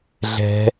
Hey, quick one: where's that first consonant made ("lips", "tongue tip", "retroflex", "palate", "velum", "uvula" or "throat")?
tongue tip